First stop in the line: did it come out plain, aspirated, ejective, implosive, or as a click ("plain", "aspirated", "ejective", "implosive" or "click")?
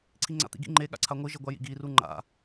click